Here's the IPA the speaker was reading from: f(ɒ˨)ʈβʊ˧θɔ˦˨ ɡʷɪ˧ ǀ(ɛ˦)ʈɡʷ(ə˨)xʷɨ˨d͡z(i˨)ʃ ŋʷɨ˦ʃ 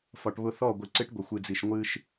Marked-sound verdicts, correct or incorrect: correct, incorrect: ɪ˦, correct, correct

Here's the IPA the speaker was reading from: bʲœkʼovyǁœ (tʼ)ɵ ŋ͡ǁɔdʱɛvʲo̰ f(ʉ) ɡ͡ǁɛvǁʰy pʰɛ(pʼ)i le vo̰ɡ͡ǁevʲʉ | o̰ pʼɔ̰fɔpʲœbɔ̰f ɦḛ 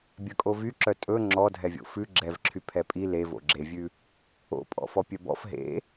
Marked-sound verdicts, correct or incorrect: correct, correct, correct

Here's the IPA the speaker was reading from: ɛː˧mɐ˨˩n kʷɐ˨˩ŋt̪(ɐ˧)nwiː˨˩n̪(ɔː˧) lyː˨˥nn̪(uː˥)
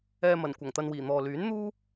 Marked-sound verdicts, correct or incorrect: correct, incorrect: ɔː˨, correct

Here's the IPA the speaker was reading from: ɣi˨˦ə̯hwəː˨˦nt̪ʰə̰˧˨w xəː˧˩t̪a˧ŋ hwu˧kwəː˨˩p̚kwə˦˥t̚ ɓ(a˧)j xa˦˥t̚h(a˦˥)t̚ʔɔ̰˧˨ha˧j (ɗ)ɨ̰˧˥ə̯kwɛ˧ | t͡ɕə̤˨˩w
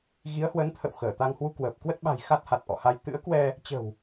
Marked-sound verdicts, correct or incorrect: incorrect: a̤˨˩, incorrect: a˨˩, incorrect: t̪

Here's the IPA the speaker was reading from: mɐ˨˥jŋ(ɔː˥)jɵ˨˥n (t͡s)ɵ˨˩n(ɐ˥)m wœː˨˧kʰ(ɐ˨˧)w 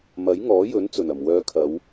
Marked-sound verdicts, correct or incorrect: incorrect: ɔː˨˥, correct, incorrect: ɐ˨˩, correct

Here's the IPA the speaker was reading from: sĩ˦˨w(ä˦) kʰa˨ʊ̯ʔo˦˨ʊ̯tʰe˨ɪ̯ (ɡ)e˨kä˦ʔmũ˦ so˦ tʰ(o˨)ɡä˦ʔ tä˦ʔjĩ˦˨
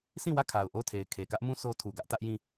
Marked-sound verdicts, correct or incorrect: incorrect: ä˦˨, incorrect: kʰ, incorrect: u˨

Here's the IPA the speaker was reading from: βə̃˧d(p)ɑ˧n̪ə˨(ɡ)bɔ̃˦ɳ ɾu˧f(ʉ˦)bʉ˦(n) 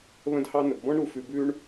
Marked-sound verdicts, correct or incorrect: incorrect: h, correct, incorrect: ʉ˧, incorrect: ɳ

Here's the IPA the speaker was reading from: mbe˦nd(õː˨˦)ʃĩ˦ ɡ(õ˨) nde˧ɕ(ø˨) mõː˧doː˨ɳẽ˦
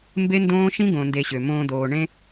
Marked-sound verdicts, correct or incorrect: incorrect: õː˦, correct, correct

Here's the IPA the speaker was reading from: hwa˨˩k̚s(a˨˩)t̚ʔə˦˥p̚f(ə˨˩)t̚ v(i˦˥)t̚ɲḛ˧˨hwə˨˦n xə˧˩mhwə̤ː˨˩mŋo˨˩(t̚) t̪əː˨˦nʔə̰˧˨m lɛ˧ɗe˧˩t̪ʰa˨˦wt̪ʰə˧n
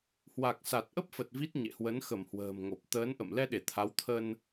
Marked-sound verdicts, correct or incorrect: correct, correct, correct, incorrect: p̚

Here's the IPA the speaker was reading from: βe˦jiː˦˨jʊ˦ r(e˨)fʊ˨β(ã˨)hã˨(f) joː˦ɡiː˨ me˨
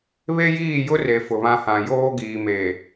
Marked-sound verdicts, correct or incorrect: correct, incorrect: ã˦, incorrect: none

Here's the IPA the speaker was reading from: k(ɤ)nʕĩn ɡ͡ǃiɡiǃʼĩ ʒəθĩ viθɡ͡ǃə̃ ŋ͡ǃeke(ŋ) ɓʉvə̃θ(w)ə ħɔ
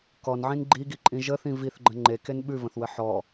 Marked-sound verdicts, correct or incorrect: incorrect: ɔ, incorrect: n, correct

